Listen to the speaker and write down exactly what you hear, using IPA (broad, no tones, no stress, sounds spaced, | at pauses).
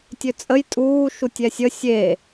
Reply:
tʲ ø t͡sʼ ə j tʼ uː ʃ u tʲ ɛ sʲ ə sʲ e